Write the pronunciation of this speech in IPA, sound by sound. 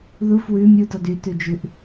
ð u f w ʉ mʲ u d ɔ d y t ʉ d͡ʒ ʉ ʔ

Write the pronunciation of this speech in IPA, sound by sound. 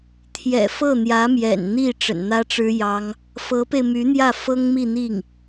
t̪ʰ j ɛ̰˨˩ f ɤ˥˩ n̪ j ä˧˥ m j ɛ̰˨˩ n n̪ i˥˩ ʈ͡ʂ ə̰˨˩ n n̪ ä˥ ʈ͡ʂ ɻ̩˥ j ɑ˥ ŋ | f ɤ˧˥ p e˧ ɪ̯ m y˧˥ n̪ j ä˥˩ f ɤ˥ ŋ m i˥˧ n̪ i˥˩ ŋ

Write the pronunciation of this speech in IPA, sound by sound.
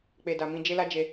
k͡p e˨ d a˨ m ĩ˧ d͡ʒ e˦ l a˦ d͡ʒ e˧

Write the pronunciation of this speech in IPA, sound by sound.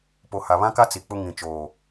p o˨ h a˨ β ã˦ k a˦ t͡s i˨ k͡p ʊ˦ ŋ ĩ˨ t͡ʃ oː˨

